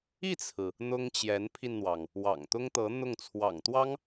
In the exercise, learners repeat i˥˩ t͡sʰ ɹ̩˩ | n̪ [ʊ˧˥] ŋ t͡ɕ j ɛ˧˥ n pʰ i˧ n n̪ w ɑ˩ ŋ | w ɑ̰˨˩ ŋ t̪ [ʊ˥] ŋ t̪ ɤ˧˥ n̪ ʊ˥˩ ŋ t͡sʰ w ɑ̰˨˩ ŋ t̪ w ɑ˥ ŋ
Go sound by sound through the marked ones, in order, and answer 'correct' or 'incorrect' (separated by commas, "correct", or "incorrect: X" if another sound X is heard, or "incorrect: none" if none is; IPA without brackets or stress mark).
incorrect: ʊ˥, correct